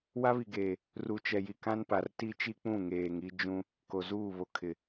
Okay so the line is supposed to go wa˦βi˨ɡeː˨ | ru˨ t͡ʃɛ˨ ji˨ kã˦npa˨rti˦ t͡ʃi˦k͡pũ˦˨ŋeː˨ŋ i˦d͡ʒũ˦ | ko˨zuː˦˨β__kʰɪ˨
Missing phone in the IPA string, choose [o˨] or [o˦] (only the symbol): o˨